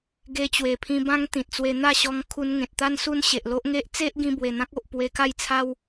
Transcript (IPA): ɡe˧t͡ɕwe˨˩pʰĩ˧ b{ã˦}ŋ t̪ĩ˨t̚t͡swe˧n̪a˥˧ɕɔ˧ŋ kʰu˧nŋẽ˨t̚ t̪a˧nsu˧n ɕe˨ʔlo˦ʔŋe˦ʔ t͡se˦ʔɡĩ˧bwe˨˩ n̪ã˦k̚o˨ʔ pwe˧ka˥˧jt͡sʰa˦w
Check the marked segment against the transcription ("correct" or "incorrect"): incorrect